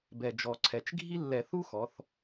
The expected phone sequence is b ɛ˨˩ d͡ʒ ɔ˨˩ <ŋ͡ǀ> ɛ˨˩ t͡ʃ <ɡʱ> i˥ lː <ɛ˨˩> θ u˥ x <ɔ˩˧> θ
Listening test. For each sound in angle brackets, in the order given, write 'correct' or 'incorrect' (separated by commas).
incorrect, correct, incorrect, correct